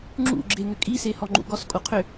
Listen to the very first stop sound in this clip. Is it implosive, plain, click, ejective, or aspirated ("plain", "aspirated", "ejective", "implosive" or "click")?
click